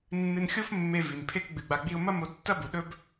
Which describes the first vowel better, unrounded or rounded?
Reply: unrounded